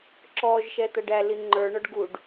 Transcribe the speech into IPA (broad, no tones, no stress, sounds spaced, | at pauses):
ǁ ɔ ʒ ʃ ɛ t̪ ʌ ɖ æ l i ŋ͡ǃ ə˞ ɳ ɔ ɖ ɡ u ɖ